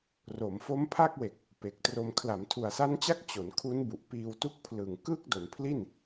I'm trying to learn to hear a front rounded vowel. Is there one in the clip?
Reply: no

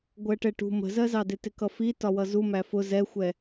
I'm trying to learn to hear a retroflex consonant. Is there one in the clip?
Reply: yes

